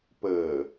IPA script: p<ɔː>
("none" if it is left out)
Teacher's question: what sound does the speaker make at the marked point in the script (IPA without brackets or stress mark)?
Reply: əː